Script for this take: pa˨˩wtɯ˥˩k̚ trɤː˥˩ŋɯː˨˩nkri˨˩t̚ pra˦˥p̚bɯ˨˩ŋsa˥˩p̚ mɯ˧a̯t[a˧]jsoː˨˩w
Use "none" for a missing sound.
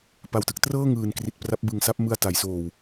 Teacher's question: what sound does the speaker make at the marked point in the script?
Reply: a˩˦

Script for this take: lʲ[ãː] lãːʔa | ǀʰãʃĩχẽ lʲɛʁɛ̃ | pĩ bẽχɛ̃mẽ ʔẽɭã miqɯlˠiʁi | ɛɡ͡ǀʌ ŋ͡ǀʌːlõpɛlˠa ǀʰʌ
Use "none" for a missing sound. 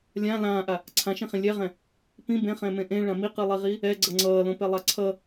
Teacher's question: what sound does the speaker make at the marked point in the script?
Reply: ã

